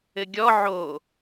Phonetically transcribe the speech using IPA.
ɘɡʲɔ ʕo

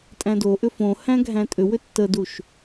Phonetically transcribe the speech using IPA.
tʼæ̃doʔʏ fõhæ̃ ɡʱæ̃tʼʏwʏ tːəduʃ

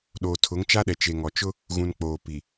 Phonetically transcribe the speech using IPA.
ɗoː˨tʰʊ˨˦ŋt͡ʃa˦ɗɛ˨ t͡ʃe˨ŋɔ˨t͡ʃʊ˦ | ɣũ˨n k͡poː˨pi˨

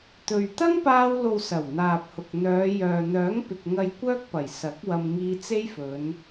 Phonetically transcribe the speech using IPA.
t̪ɵ˨ɥ t̪ɐ˥ŋpaː˧wlo˨w sɐ˨˩wn̪aː˨p̚hʊ˨k̚ n̪œː˨˧jœː˨ n̪œː˨˥ŋpɪ˨k̚ŋɐ˧j kʷœː˥k̚ pɐ˨˩jsɐ˨˥k̚wɐ˧m ŋiː˧t͡se˥jfɵ˨˧n

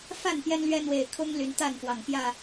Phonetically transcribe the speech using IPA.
fa˥˨n pjɛ˦nlɥɛ˦ n̪we˨˩ɪ̯ kʰʊ˦ŋ ly˨˦nt̪a˥˨nfwɑ˨˩ŋ pjä˥˨

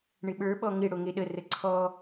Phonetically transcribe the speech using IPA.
ɳɪɓə˞ ɓɔŋɪ ɽoŋeɗə rəǀʰɔ

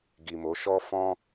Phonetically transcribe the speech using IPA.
ɡi˨mo˨˦ʃɔ˦ fɔ̃˦

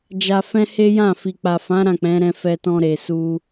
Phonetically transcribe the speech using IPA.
d͡ʒa˧fɛ̃˦ he˦jã˦˨ fi˨k͡pa˨fã˨˦ ɾã˦˨k͡pɛ̃˨˦ɾɛ̃˧ fɛ˧tɔ̃˧ ɾe˨ su˧

